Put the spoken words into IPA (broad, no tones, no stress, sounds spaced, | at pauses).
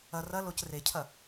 ɐ r ɐ l o c r e cʰ ɐ